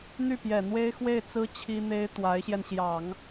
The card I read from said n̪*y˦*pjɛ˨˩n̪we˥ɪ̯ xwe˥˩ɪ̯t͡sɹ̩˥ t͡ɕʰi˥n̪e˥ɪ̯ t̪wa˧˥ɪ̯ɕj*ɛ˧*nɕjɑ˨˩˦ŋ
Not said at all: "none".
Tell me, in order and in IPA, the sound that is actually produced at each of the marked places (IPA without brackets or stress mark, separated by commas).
y˥˩, ɛ˧